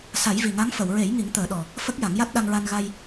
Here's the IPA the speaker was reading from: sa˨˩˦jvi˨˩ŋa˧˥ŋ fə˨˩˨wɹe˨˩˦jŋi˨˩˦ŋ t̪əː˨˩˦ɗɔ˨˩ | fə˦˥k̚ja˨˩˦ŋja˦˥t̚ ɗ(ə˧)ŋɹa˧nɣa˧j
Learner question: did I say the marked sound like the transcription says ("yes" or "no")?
no